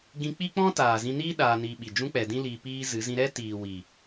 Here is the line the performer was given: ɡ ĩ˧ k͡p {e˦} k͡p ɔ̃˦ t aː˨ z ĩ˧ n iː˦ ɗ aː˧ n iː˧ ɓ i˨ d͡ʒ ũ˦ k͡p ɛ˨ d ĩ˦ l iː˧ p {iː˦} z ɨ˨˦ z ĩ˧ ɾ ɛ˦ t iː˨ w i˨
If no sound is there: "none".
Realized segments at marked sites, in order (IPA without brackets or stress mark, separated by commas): i˦, iː˦